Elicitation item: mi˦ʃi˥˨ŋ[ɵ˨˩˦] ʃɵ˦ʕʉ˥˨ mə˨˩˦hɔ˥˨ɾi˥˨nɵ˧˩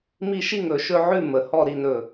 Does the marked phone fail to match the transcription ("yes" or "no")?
no